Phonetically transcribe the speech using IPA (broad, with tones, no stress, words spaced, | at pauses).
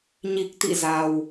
ɲi˨˩k̚t̪ḭ˧˨ za˨˩w